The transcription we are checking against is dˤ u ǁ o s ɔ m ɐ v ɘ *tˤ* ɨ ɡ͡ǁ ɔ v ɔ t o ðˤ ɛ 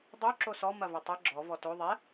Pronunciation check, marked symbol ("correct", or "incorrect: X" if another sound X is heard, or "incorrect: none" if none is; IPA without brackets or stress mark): correct